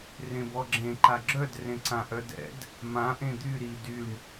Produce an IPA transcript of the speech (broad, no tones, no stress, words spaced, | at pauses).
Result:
rẽbɔɡ͡ǁẽ ǃaɡ͡ǁœd rẽǀãʔœdɛ̰d | mã ʔẽd̪y ɾi dyɳ